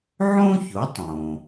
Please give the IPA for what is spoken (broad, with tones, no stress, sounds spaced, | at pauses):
ʕ õ˥ ç o˩˥ tˤ õ˩